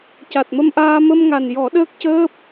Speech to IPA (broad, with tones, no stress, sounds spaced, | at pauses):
c a˨˩ t̚ m ə˧ m ʔ aː˧ m ə˧ m ŋ a˨˩ n j ɔ˨˩˦ ɗ əː˦˥ k̚ c əː˦˥ p̚